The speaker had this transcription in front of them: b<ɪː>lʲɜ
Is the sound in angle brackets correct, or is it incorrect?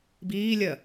incorrect